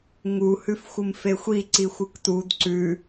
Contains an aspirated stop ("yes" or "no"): no